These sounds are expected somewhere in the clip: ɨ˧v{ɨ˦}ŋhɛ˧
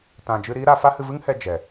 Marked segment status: correct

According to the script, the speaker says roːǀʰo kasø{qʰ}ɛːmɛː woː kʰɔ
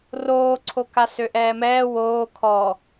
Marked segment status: incorrect: ʔ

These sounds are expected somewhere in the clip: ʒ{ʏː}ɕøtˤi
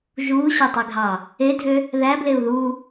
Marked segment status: incorrect: uː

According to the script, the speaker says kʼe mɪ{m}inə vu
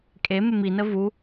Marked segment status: correct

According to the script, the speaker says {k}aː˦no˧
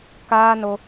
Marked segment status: correct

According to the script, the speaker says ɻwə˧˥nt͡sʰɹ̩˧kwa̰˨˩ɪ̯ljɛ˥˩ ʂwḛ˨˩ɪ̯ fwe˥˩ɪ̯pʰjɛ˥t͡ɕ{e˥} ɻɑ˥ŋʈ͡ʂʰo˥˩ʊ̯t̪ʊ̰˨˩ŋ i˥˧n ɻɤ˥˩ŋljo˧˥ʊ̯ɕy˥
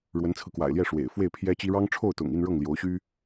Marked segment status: incorrect: i˥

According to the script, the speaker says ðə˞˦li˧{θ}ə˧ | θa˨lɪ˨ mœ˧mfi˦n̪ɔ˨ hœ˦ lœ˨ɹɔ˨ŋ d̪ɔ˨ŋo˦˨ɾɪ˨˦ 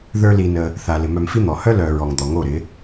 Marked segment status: incorrect: n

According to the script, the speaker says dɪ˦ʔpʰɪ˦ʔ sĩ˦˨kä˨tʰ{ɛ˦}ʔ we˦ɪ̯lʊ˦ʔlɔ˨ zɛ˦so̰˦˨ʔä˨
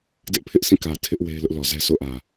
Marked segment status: incorrect: ɪ˦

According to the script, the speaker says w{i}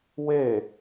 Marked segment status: incorrect: e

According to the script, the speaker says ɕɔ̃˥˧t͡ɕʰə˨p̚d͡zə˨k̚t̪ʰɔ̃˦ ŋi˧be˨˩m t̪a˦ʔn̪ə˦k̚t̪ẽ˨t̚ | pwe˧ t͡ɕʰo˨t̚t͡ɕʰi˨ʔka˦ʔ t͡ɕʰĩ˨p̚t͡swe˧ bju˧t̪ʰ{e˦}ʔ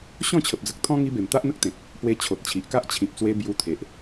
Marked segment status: incorrect: e˨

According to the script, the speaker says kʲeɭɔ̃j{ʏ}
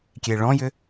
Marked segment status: correct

